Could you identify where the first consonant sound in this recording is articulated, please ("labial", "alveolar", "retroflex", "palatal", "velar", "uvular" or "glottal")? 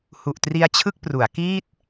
glottal